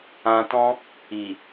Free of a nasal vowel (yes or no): no